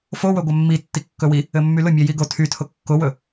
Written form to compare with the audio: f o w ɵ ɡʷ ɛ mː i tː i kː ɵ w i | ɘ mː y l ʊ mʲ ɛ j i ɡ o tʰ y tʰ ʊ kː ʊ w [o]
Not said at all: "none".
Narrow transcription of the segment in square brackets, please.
ɵ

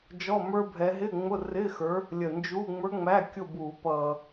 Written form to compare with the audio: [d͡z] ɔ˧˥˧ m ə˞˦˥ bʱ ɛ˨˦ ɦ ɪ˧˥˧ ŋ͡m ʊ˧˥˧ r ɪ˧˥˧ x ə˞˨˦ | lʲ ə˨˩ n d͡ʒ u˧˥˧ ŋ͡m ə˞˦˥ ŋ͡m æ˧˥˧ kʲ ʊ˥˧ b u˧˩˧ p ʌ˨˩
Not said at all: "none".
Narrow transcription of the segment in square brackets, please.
d͡ʒ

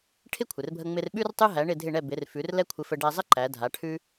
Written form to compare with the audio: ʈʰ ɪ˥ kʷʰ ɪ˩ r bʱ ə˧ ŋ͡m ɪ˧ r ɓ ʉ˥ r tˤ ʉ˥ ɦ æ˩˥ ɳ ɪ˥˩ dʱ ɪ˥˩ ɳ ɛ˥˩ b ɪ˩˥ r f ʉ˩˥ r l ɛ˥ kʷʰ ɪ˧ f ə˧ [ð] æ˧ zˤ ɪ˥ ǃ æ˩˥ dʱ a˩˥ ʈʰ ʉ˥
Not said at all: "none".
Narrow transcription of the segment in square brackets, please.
ɖ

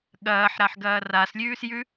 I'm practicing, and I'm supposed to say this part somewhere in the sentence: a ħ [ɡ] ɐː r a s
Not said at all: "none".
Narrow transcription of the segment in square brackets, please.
ɡ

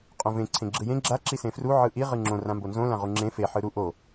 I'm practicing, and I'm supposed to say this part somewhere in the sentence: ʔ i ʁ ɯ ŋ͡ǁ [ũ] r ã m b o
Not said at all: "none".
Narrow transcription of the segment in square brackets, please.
õ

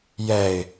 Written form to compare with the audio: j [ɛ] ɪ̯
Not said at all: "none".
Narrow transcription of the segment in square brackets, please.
ɛ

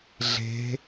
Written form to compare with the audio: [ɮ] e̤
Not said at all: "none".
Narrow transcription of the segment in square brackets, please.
ɮ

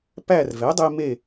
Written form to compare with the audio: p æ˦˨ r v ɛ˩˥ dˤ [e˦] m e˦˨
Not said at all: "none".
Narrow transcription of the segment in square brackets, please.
e˦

